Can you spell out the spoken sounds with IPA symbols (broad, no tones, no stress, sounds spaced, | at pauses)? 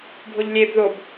bʱ o ʎ lʲ e b ð o b